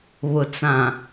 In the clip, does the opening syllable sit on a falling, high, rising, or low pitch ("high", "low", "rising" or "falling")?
low